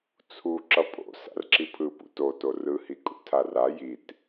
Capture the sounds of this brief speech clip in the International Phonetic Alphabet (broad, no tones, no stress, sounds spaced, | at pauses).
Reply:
t͡sʰ u ǁ ʌ pʼ o̰ s a̰ r ǁ i pʰ ɯ p ṵ t o t o r ɯ h i kʼ ṵ tʰ a r a j i t